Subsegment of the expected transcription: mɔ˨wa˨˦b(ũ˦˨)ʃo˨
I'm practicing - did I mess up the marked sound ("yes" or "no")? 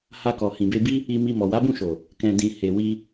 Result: no